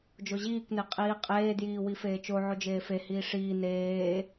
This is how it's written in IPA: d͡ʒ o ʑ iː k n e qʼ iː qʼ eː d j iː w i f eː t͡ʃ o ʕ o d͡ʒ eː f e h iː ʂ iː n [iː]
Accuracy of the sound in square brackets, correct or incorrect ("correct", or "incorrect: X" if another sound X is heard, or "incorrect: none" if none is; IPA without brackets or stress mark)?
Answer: incorrect: eː